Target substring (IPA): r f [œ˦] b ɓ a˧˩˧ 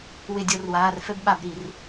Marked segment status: incorrect: ɛ˦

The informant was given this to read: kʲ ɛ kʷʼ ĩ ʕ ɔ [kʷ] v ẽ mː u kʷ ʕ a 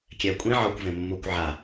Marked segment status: correct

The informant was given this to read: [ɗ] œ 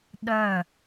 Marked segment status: correct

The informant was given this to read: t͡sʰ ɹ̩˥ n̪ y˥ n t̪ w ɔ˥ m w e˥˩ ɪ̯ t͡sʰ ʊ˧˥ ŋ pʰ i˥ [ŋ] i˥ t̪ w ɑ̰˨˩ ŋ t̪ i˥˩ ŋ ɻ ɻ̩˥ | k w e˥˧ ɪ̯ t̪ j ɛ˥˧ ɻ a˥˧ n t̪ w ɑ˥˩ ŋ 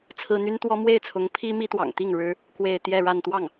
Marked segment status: incorrect: m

